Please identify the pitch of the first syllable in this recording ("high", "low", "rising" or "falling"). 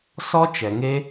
high